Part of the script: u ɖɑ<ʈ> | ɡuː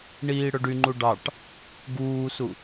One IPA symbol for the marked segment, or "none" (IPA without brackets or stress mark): ʈ